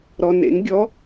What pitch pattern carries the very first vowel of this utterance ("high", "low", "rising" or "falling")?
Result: low